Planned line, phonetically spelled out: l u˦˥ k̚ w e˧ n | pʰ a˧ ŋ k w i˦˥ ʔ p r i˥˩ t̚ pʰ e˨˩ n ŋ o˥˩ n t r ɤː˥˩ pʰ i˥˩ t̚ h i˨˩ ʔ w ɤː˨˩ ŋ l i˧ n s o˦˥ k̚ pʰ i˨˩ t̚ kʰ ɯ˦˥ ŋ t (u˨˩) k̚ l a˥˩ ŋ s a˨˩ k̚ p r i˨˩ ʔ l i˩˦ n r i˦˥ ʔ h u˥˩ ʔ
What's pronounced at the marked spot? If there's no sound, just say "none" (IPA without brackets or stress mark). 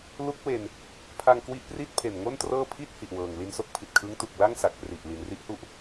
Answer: u˨˩